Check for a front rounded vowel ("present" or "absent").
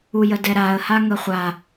absent